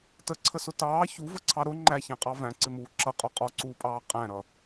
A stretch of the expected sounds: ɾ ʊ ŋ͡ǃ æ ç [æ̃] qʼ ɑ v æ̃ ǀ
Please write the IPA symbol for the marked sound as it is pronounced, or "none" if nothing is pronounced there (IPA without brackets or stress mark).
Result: æ̃